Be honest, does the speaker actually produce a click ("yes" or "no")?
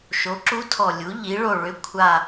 yes